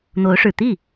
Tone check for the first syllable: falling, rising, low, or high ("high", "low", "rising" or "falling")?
rising